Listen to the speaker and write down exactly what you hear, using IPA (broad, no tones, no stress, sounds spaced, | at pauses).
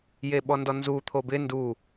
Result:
j e ɓ ɔ n d ɔ n z u t̪ʰ o b ɪ n d u